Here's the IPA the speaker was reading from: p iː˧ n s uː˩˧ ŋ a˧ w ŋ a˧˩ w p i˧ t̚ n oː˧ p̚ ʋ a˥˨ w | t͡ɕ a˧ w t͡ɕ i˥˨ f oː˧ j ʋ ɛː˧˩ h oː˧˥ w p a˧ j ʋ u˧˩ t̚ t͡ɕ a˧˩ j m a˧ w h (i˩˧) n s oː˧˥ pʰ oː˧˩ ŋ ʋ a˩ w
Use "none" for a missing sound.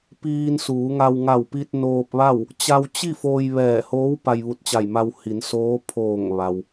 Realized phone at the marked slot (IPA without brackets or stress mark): i˩˧